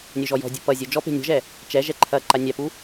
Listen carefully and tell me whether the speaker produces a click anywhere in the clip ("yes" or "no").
yes